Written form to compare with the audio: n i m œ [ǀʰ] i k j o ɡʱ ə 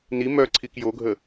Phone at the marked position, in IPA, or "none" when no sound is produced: ǀʰ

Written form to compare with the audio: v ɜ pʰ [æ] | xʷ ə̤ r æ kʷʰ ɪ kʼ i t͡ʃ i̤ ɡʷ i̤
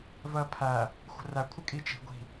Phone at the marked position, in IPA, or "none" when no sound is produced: æ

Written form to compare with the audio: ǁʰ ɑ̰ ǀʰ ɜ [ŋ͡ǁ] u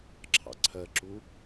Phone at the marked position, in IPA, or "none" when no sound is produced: ǁ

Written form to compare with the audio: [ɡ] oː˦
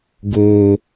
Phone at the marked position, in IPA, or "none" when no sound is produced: ɡ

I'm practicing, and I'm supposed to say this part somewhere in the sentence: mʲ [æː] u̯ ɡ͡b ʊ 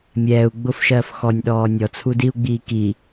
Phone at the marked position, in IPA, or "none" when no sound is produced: ɛː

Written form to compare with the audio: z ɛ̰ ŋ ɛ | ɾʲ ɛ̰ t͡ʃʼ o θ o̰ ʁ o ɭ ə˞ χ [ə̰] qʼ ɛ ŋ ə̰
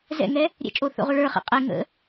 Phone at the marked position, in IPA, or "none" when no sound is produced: ɛ̰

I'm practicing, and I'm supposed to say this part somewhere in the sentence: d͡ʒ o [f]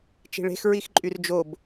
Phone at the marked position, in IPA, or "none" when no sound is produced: b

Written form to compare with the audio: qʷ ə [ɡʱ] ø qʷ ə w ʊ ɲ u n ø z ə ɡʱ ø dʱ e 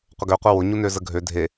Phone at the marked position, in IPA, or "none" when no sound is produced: ɡ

